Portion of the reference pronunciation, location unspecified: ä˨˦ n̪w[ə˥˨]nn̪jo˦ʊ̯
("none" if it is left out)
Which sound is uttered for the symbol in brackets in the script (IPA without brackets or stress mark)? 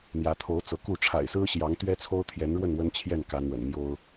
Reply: ə̰˨˩